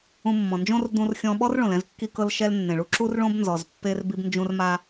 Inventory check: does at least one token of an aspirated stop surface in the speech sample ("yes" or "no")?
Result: no